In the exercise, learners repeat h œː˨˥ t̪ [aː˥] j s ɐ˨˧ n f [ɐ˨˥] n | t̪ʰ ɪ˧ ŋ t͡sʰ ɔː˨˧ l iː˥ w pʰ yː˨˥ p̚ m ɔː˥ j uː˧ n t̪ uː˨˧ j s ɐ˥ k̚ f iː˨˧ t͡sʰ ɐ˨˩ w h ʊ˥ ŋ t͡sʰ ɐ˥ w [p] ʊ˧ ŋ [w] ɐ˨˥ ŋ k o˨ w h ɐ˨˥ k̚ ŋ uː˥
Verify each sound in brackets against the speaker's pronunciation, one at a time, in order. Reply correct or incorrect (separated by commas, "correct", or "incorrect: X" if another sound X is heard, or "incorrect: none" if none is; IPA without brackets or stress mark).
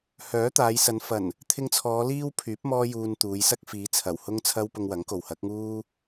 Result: incorrect: aː˨˧, incorrect: ɐ˨˩, correct, correct